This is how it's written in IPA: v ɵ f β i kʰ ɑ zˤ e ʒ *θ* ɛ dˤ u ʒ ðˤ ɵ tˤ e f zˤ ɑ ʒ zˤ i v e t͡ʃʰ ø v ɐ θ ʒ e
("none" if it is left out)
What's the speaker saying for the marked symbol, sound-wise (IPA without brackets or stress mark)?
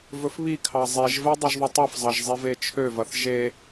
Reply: v